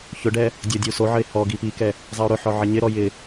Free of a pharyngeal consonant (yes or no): no